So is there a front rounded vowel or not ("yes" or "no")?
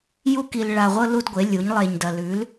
no